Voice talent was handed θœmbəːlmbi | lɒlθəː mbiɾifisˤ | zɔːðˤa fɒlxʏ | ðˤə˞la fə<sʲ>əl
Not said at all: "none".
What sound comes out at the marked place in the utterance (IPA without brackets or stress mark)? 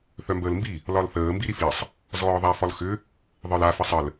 sˤ